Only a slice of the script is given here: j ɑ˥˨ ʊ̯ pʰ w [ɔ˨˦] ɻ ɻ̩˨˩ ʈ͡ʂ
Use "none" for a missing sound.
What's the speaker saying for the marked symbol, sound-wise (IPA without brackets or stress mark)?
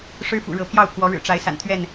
ɔ˨˦